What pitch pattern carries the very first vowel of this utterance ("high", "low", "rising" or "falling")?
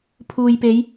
low